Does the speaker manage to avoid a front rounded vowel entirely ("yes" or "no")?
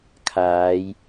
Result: yes